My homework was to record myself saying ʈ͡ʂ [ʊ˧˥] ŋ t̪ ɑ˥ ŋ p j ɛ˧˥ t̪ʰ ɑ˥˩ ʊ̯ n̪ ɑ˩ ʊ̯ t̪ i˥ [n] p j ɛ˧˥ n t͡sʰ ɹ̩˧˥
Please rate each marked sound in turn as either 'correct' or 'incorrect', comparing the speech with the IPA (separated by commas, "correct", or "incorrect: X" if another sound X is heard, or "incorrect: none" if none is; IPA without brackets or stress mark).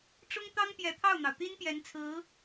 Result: incorrect: ʊ˥, correct